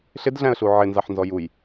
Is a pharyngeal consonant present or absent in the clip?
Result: present